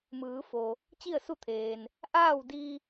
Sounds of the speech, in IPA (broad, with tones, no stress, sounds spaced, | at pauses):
m ɯː˩˧ f o˩ | t͡ɕ i˥˨ ə̯ s u˥˨ t̪ʰ eː˩ n | ʔ aː˥˨ w d i˧